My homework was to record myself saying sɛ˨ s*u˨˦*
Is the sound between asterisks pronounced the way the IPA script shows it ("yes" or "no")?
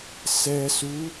yes